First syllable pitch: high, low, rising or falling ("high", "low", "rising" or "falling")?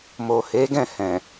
low